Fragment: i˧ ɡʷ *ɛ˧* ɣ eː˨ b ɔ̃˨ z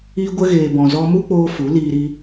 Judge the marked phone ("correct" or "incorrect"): incorrect